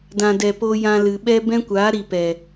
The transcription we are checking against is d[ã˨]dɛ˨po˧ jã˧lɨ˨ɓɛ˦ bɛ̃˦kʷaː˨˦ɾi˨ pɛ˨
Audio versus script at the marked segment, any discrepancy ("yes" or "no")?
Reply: no